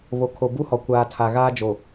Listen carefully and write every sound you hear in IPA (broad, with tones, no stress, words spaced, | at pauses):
βo˨kʰo˨ bu˦hɔ˨ kʷaː˨tʰa˨ ɣaː˦ d͡ʒo˨